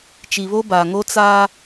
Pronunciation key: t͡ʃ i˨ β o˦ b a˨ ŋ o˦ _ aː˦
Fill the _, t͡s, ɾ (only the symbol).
t͡s